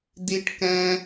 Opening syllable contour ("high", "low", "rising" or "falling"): high